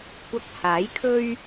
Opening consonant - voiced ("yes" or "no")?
no